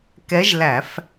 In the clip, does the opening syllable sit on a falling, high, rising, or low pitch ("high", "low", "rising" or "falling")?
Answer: rising